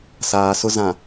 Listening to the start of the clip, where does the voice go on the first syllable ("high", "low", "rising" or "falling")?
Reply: low